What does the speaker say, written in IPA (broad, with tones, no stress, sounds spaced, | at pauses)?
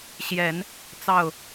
ɕ j ɛ˨˩˦ n | t͡s ɑ˥˩ ʊ̯